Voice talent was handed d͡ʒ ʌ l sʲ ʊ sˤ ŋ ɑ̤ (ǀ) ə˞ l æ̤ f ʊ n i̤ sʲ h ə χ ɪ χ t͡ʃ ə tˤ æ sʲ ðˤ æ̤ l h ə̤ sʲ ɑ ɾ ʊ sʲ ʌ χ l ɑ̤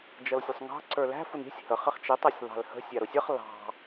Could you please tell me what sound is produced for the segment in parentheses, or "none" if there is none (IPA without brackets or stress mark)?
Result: ǀ